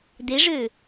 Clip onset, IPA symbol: d̪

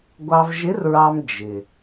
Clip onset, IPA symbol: ɡʷ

